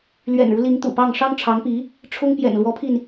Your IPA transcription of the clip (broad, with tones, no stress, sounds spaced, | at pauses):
l ɥ ɛ̰˨˩ n ɻ u˦ l i˧˥ ŋ t̪ ṵ˨˩ p ɑ˥˩ ŋ ʂ ɑ˥ ŋ ʈ͡ʂʰ ɑ˧˥ ŋ p i˧˥ | ʈ͡ʂʰ ʊ˥ ŋ p j ɛ̰˨˩ n l w ɔ˧˥ pʰ i˧ n